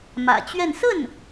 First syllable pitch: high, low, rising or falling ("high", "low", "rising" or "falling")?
low